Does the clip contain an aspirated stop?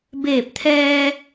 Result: yes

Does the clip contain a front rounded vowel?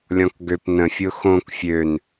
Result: yes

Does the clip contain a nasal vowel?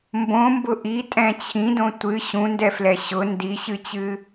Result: yes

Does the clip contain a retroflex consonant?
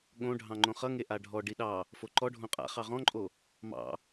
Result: yes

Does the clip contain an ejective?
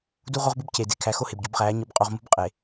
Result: yes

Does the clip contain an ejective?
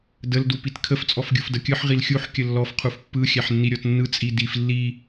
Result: yes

